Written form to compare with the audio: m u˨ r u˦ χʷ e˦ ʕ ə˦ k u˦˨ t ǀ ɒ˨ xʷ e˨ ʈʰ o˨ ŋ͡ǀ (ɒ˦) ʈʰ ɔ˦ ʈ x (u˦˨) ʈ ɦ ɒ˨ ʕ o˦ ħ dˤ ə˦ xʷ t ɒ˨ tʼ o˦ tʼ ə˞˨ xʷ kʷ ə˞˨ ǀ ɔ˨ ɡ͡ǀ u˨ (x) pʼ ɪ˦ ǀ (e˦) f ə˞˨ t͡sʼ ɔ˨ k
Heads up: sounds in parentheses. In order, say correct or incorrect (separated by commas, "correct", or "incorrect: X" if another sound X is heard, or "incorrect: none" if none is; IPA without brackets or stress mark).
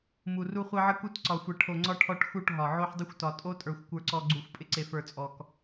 correct, correct, incorrect: xʷ, incorrect: e˨